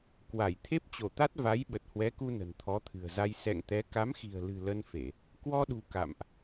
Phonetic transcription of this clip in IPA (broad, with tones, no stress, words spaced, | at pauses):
kwa˧˩j t̪ʰe˦˥p̚t͡ɕo˧˩t̪a˦˥t̚ va˨˦j ɓə˨˩t̚hwɛ˨˦ku˧ nə̤˨˩nt̪ʰɔ˨˦t̪ʰɨ̤˨˩ə̯za˧j sɛ̰˧˨ŋt̪ɛ˨˦ ka˨˦mxi̤˨˩ə̯lɨ̤˨˩ lə˧nfe˧˩˨ | kwɔ˧ɗṳ˨˩ ka̰˧˨mʔ